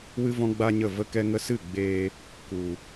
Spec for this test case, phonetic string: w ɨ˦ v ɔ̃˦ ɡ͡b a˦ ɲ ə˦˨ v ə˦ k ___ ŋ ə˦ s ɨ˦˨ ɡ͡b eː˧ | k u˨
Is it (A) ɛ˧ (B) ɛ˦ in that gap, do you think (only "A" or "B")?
B